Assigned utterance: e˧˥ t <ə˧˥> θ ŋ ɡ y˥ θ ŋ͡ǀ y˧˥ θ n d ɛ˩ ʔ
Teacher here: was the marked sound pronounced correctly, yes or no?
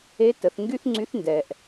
no